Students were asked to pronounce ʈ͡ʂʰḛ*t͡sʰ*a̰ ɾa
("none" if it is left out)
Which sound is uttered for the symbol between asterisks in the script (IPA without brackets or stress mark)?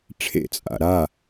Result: t͡sʼ